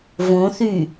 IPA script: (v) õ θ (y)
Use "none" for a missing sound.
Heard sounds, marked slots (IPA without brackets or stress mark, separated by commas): v, y